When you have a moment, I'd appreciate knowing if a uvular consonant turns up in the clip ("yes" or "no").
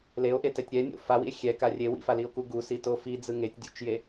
no